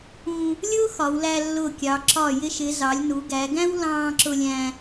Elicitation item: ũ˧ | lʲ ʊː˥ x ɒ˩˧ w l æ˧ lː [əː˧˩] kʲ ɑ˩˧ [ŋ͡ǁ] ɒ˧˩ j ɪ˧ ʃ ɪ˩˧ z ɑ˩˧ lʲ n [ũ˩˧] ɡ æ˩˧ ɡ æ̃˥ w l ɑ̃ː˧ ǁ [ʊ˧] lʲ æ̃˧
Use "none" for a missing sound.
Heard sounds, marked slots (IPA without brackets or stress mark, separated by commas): ʊː˧˩, ǁ, u˩˧, ʊ˧